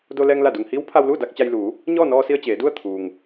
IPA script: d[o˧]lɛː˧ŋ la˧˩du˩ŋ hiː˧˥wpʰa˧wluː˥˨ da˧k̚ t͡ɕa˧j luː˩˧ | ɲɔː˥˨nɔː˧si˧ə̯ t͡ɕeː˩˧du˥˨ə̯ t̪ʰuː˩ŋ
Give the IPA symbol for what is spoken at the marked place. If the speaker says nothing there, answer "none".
o˧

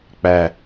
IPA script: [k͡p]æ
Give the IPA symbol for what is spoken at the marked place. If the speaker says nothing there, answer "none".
k͡p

